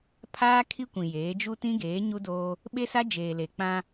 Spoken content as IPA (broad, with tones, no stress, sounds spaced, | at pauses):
pʰ aː˦ kʰ i˦ kʷ ĩ˨ j eː˨˦ d͡ʒ u˦ t ĩ˦ ɡ eː˨˦ ɲ u˦ d oː˦ | ɓ e˦ s a˦ d͡ʒ eː˨ l e˨ k͡p ã˦